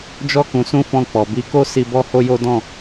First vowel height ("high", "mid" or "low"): mid